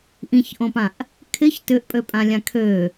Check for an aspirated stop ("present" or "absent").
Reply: present